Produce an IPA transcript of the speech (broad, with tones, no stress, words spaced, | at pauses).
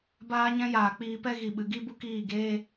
baː˧ɲɛ̃˧ jaː˨k͡piː˧pɛ˦ ɣi˨ɓɨ˨ɡi˦bu˦ kiː˦˨ɡeː˦